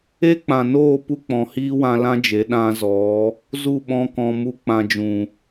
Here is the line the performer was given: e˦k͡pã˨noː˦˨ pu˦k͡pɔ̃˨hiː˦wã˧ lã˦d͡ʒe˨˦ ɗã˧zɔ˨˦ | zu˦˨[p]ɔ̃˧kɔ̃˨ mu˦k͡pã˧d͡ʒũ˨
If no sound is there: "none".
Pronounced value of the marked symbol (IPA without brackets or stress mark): ɓ